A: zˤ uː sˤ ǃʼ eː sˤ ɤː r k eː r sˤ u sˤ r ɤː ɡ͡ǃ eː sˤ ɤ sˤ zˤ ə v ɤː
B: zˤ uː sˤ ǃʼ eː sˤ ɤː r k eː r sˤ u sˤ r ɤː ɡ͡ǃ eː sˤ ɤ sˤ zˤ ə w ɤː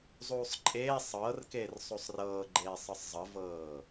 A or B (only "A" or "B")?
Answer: A